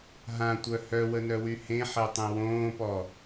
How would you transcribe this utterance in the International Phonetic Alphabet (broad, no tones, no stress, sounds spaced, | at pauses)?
ɦ ã tʷ œ h œ w ə n œ w y h ẽ ħ e tˤ ẽ w õː p ɔ